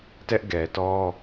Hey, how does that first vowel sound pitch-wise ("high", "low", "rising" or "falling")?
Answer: high